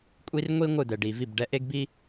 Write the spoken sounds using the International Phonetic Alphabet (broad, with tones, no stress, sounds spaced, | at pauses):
kʷʼ i˧ r ŋʷ i˦ ŋʷ ɯ˦˨ d̪ ɛ˨ ɖ i˨ v i˦˨ b ɖ ɛ˧ ʔ e˦ ɡ b i˦